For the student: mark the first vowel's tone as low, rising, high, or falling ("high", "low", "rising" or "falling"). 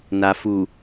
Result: low